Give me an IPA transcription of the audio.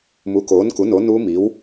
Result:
m u˨˥ k oː˨˥ n k u˨˥ n o˨˥ n u˦˥ m i˨˥ w

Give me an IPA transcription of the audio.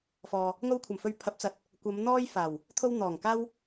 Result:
f ɔː˨ | ŋ o˧ w kʷʰ ɐ˨˩ m f ɵ˧ ɥ pʰ ɐ˨˥ p̚ t͡s ɐ˨ t̚ | kʷ ɐ˨˧ m n̪ ɔː˥ j f aː˨˩ w | t̪ʰ o˧ w n̪ ɔː˨˩ ŋ k aː˥ w

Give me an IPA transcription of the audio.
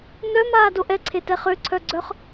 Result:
n œ m aː d o ʔ ɛ ǀʰ e t ɛ χ ø ǀʰ œ ɡ͡ǀ œ χ

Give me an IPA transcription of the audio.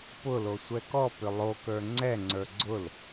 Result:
p ʊ l o sʷ ɛ k ɔ p ʏ lˠ o k ə˞ ŋ͡ǀ ɛ ŋ͡ǀ ə˞ ɡ͡ǀ ʊ l

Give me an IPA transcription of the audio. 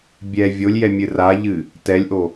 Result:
bʲ ɛ vʲ o lʲ j ɛ mʲ ɨ r a ʎ ɨ | t ɛ lʲ ʔ o

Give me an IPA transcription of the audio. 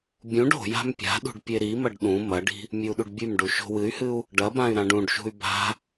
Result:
bʲ ũ ɖ o̤ j a̤ m pʲ a̤ ɗ ṳ ɖ pʲ e ɾ i m ɐ ɖ ɗ ũ m ɐ ɖ i̤ | mʲ ɨ u̯ ɗ u ɖ bʲ ʉ m ɖ u ʃ o̤ w ɨ y̯ h ɨ u̯ | ɖ ɐ b ã y̯ ɾ ã ɖ ũ ɖ ʃ ṳ y̯ b a̤

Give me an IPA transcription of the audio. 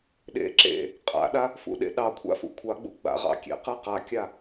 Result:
ɗ ḛ ǁ ḛ | qʼ a̰ ɗ a | f ṵ ɗ ḛ ɗ ɑ kʷʰ a̰ f ṵ kʷʰ ɑ ɡ͡b ṵ ɡ͡b a̰ ʁ ɑ̰ kʲ ḛ q ɨ q a kʲ a

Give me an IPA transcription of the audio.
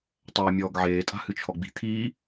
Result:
tˤ œ ɪ̯ mʲ ɔː ɡ ʕ eː tʼ a̤ h ɨ t͡ʃʰ ɔ ɡ͡b i̤ t̪ʰ iː

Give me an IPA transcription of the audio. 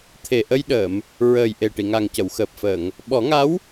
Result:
t̪ʰ e˨˩ ʔ ə˧ j ɗ əː˨˩˨ m | ɹ əː˨˩ j ʔ e˨˩ ʈ i˨˩˨ ŋ a˨˩ ŋ c ə˨˩˨ w x əː˨˩ p̚ f əː˨˩˨ ŋ | ɓ ɔ˨˩˦ ŋ a˧˥ w

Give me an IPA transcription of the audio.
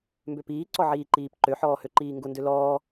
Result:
m b ø p iː ǀ ɔ ʕ iː ǃ iː p ǃ ø ħ ɔː h ø ǃ iː ŋ ɡ ʊ n d ø l ɔː

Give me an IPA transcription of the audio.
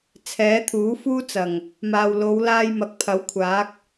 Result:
t͡sʰ ɛː˨˥ t̪ʰ uː˨˥ f uː˥ t͡s ɐ˨˩ ŋ | m aː˨ w l o˨˧ w l aː˧ j m ɐ˨˥ k̚ pʰ ɐ˨˥ w kʷʰ aː˨˥ k̚

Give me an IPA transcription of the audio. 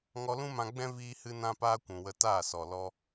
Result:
ŋ ɔ˧ l ũ˦ m ã˧ ɡ͡b ɛ̃˦ v iː˦ h ɨ˦ n ã˦ p aː˦ kʷ ũ˨ w ə˧ t aː˦˨ s ɔ˨ l ɔ˧

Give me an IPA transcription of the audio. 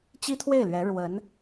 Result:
t͡ɕ i˥ t̪ʰ w e˥˩ ɪ̯ l ɥ ɛ˧˥ ɻ w ə˧˥ n

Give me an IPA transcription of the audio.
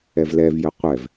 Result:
ɛ v l ɛ v j ə qʷ ɛ v

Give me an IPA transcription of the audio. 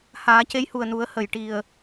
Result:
h aː˨˩˦ c e˧˥ j h u˨˩ ə̯ n u˨˩˦ ə̯ h ə˨˩˨ j ʈ i˨˩ ə̯

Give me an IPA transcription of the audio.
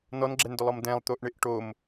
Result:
n ɔ n ɡ͡ǁ ɛ n d ʊ lˠ ɔ m d ɛ̃ lˠ t̪ o ʔ ɳ ɪ ʔ ʈ o m

